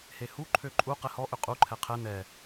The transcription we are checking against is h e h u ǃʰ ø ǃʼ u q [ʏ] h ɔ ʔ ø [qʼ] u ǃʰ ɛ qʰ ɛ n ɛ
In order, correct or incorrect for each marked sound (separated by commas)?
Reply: incorrect, correct